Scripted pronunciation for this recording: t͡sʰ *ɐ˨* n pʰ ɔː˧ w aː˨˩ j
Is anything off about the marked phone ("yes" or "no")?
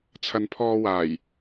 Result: no